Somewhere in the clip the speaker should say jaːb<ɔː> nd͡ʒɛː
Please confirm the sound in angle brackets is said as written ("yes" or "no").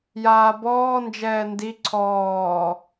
yes